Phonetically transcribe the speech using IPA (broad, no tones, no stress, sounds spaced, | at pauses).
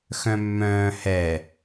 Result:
x œ̃ mː œ̃ː h ɛ